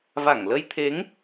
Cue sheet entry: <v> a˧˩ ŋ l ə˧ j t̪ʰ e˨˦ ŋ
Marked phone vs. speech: correct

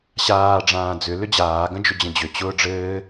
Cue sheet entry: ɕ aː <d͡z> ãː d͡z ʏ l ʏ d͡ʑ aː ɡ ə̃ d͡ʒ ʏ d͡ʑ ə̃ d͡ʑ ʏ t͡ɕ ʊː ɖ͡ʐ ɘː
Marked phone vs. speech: incorrect: ɖ͡ʐ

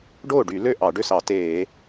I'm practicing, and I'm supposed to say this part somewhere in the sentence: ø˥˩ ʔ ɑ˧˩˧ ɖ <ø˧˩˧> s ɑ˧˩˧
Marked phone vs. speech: incorrect: ø˥˩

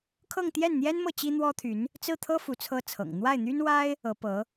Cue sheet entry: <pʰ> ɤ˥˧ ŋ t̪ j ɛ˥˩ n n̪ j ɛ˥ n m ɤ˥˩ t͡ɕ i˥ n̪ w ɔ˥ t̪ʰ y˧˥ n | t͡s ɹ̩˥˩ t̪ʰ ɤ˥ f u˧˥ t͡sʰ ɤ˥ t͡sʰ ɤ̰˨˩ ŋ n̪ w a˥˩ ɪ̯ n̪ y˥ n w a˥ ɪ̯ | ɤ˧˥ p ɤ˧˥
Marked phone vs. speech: incorrect: kʰ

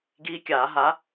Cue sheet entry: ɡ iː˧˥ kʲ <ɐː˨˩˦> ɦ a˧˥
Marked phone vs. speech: incorrect: aː˨˩˦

